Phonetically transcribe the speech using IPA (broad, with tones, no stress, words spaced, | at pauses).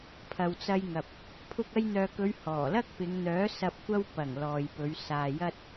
pʰɐ˨wt͡sɐ˧jŋɐ˨p̚ | pʰʊ˧k̚ɐ˧jn̪œː˨kɵ˨˧ɥ hɔː˨˩lɐ˥k̚pɪ˨˧ŋn̪œː˨˥ sɐ˨p̚kʷɐ˧w pɐ˨˩ŋ lɔː˨jpɵ˨˧ɥ saː˨ jɐ˥t̚